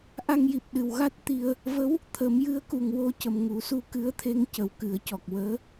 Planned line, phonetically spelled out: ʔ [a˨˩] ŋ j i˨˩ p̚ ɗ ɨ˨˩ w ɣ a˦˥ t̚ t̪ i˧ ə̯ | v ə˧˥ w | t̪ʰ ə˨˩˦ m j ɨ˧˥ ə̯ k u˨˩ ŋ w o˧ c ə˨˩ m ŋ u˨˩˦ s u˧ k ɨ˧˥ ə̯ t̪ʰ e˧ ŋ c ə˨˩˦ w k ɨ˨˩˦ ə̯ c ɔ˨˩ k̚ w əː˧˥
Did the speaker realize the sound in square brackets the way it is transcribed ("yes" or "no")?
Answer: no